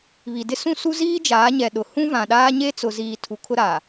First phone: β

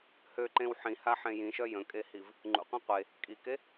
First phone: h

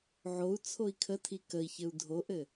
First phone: ʕ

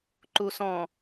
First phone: ǃ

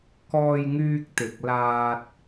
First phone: k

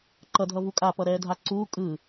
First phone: ǃ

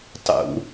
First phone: tˤ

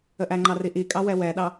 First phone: ə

